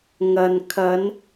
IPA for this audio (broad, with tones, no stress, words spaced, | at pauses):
ŋɐ˨n kʰɐ˨˧n